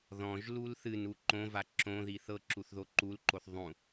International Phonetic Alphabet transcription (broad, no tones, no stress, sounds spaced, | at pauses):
ð ɔ̃ ʒ l u l θ ɨ n u ǃ õ v a ǁ õ ð i θ ɤ ǁ u θ ð o ǃ u l ǃ o θ ðˤ ũ